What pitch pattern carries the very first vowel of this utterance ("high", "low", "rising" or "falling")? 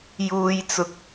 high